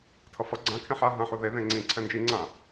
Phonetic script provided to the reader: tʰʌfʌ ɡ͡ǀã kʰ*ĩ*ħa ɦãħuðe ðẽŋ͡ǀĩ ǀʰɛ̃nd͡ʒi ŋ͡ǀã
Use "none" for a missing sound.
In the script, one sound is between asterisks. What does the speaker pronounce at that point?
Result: ẽ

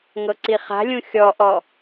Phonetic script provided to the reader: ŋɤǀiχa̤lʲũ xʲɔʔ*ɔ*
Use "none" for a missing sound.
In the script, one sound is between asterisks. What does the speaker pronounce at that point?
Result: ɔ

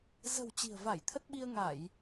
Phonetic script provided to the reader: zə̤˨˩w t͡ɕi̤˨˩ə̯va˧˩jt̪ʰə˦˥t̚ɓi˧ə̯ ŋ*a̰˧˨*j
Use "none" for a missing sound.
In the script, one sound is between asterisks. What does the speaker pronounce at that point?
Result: a˧˩˨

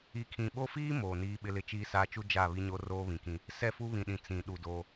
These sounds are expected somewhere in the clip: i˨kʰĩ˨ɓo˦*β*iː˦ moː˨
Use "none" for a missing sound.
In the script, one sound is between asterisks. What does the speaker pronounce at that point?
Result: f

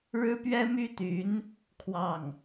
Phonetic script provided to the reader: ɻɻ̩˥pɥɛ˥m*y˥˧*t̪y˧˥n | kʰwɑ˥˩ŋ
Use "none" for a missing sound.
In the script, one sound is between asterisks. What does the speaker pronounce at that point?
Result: y˥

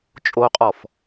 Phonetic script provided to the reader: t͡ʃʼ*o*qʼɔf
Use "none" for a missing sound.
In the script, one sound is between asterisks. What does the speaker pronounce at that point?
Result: o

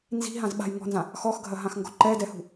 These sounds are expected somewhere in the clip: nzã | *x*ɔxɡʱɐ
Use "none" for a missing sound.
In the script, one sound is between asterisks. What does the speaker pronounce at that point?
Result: x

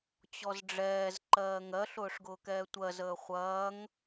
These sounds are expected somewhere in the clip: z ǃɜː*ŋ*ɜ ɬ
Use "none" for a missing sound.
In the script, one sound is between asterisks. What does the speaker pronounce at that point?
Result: ŋ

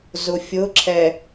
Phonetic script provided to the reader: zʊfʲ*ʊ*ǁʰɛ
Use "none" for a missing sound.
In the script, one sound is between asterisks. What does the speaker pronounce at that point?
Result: ʊ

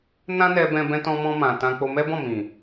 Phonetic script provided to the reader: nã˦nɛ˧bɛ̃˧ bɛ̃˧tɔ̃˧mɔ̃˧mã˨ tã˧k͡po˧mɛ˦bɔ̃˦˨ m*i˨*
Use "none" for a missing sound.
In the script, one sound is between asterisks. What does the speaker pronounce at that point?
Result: ĩ˨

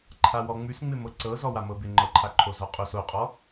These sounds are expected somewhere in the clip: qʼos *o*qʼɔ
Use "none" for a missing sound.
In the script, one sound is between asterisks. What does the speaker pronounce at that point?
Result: o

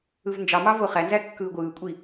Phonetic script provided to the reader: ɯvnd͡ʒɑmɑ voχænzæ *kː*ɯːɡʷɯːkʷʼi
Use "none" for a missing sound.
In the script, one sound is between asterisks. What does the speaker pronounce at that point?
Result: kː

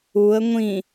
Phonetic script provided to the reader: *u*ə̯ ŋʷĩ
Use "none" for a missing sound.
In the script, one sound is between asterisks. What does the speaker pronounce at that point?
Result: u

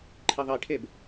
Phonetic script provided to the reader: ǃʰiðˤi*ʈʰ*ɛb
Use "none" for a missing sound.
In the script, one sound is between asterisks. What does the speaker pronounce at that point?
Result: ʈʰ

